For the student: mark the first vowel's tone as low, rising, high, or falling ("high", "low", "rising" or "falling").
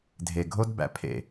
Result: low